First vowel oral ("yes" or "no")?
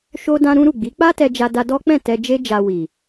yes